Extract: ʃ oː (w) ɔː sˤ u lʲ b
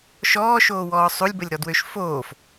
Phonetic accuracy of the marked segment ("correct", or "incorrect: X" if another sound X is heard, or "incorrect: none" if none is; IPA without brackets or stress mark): correct